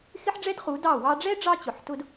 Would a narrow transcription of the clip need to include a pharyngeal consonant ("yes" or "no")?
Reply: yes